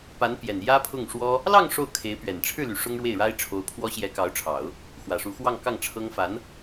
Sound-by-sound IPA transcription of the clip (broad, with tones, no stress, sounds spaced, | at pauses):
p a˧˥ n p j ɛ˨˩ n j ä˥ pʰ ʊ˥˩ ŋ ʂ w ɔ˥ | l ɑ˥˧ ŋ ʂ o˥˩ ʊ̯ kʰ e˧˥ ɪ̯ p ɥ ɛ˨˩ n ʈ͡ʂʰ ɻ̩˥˩ l y˨˩ ʂ ʊ˥ ŋ ɻ w e˥˩ ɪ̯ ɻ a˥ ɪ̯ ʈ͡ʂʰ o˧˥ ʊ̯ pʰ w ɔ˥ ɕ j ɛ˧˥ k ɑ˧˥ ʊ̯ ʈ͡ʂʰ ɑ˨˩˦ ʊ̯ | x w ä˨˩ ʂ u˧˥ x w ɑ˥˧ ŋ k ɑ˥˩ ŋ ʈ͡ʂʰ ɤ˥ ŋ f a˧˥ n